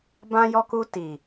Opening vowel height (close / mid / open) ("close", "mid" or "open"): open